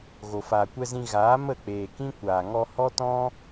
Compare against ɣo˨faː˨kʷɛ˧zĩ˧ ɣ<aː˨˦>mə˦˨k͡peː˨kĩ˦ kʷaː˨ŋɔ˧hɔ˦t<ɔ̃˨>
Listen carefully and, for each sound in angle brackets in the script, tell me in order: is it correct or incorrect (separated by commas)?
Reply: correct, incorrect